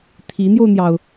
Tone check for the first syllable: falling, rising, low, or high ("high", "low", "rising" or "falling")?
rising